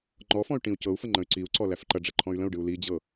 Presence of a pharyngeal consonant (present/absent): absent